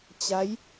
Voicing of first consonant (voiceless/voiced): voiceless